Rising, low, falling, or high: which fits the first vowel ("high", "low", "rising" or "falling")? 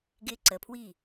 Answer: high